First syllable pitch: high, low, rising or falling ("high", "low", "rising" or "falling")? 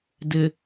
low